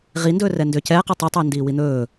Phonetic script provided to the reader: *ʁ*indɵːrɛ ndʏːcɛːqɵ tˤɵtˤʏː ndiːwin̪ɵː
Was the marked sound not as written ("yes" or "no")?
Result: no